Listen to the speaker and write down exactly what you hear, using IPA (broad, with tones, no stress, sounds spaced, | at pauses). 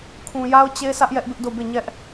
kʰ ũ˨ j a˦ ʊ̯ t͡ɕ e˦ sʰ ä˦ ʔ j ɛ˦ ʔ b ɪ˦ ʔ d o˦˨ b e˦˨ ɲ ɛ˦ ʔ